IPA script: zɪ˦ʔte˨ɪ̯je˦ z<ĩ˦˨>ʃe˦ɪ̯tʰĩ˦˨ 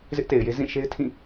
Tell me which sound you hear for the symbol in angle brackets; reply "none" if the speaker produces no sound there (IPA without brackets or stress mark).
ĩ˦˨